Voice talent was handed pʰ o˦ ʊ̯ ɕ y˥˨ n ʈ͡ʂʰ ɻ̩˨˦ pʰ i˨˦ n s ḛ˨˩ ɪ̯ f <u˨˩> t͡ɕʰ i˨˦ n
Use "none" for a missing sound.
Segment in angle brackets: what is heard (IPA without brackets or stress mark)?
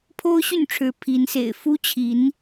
u˦